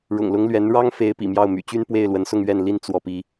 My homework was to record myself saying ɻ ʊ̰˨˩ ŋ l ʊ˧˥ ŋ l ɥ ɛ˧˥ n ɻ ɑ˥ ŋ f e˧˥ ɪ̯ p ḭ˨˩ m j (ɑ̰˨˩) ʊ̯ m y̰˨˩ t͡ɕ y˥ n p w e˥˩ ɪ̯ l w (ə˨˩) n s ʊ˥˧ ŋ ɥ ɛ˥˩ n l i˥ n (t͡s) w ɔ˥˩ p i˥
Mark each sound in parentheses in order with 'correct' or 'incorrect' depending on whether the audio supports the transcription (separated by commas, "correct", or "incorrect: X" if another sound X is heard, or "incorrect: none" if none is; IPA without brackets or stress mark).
incorrect: ɑ˥˩, incorrect: ə˧˥, correct